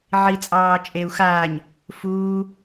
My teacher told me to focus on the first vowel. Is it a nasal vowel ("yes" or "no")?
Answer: no